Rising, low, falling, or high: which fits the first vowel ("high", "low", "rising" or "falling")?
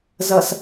low